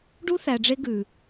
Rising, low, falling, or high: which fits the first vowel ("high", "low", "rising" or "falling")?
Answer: high